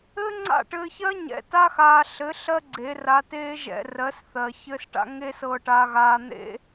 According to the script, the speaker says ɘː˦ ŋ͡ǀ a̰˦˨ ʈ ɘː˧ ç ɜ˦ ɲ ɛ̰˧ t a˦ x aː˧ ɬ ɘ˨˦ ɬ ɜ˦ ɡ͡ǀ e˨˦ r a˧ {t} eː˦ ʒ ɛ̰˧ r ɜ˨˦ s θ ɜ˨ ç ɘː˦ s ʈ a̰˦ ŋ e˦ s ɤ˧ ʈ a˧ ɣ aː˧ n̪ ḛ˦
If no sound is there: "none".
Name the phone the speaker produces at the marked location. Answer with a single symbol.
t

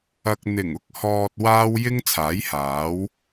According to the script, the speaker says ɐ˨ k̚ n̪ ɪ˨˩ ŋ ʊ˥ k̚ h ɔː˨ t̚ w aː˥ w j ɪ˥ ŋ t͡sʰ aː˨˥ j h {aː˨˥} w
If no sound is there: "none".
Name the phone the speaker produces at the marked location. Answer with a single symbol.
aː˨˥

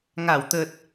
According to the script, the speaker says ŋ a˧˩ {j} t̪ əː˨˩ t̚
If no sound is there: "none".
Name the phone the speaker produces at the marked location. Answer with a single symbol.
w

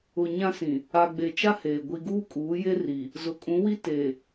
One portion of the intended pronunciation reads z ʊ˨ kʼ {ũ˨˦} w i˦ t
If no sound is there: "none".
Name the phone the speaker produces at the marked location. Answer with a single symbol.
ũ˨˦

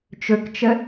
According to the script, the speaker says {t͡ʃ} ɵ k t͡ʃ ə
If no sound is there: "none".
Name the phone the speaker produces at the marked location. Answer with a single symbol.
t͡ʃ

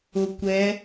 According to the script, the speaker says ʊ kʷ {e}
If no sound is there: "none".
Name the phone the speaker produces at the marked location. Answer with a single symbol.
ɛ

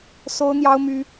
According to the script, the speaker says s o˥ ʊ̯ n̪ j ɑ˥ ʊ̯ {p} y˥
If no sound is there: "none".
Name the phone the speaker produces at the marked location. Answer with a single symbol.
m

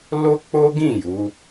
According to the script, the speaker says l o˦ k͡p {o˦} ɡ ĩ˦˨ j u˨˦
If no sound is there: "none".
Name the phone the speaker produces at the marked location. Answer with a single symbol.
o˦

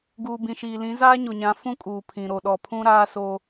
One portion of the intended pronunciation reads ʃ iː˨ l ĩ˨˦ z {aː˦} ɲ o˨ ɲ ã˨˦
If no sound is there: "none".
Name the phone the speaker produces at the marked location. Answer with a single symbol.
aː˦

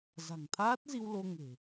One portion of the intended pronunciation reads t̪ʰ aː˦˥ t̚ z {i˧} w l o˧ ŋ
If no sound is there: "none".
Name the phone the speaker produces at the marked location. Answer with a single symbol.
i˧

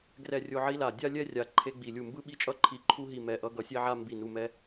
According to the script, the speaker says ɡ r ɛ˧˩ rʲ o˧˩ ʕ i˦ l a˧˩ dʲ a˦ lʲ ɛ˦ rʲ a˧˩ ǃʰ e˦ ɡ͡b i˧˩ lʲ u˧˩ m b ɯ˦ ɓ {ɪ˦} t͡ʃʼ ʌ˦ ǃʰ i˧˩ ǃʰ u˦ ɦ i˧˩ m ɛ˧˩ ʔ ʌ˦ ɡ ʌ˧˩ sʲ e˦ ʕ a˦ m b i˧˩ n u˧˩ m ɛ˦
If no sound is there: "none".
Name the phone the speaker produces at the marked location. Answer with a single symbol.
i˦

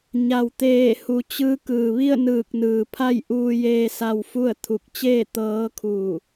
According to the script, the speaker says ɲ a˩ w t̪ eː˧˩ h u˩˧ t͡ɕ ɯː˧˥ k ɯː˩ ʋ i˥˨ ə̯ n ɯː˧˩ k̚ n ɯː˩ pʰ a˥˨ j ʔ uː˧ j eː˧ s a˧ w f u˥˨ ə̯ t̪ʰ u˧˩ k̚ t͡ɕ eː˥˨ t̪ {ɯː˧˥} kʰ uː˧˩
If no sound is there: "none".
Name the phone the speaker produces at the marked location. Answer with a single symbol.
ɤː˧˥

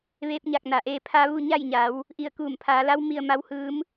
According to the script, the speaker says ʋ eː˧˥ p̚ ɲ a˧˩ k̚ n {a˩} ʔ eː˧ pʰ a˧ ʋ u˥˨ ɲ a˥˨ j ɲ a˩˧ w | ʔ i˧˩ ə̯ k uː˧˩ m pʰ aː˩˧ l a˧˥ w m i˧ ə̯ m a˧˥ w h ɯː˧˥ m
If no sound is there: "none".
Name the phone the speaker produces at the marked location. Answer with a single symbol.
a˩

